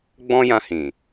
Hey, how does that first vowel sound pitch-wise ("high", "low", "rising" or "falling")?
high